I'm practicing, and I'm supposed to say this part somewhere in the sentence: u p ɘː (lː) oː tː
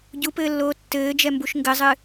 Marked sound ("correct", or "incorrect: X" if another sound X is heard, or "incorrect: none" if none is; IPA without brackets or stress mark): correct